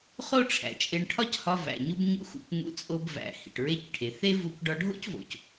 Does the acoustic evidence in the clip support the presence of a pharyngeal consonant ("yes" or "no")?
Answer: no